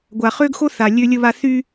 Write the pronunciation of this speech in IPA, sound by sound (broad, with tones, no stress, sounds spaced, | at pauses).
ɡʷ a˨ χ ø˦ ɡ x o˦ θ a˨ lʲ ø˦ lʲ ə˦ β a˦ θ y˦